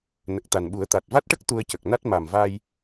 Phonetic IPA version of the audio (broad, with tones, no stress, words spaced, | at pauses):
nə˨˩k̚t̪a˨˩nɓu˨˩˦ə̯ t̪a˨˩t̚va˦˥t̚ʈə˦˥k̚ t̪u˧ə̯cə˨˩k̚na˦˥t̚ ma˨˩mva˧j